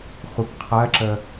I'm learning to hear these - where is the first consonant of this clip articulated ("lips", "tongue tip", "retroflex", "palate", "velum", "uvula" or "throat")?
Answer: uvula